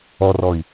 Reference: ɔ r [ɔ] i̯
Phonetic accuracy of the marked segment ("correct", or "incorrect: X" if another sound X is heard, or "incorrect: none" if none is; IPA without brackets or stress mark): correct